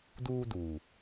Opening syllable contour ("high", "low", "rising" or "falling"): high